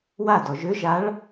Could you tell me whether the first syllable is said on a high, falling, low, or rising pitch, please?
falling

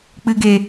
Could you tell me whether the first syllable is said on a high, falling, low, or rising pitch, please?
high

